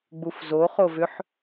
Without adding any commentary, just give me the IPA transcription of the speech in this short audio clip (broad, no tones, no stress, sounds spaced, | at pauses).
ɡ͡b u f z o χ o v ʏ ħ